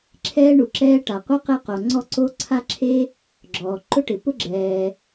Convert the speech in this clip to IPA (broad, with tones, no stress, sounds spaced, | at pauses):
ǁʰ ɛː˥ ɳ u˩ ǁ ɛː˥ ʈ a˩ qʷ a˥ q e˥ q o˩ ŋ͡ǀ ɔ˥ ǀ o˥ ǀʰ a˥ ǁʰ e˥ | ɡ͡ǁ ɔː˩ ǃ ʊ˥ ʈ ɪ˩ p ʊ˥ ɡ͡ǁ ɛː˩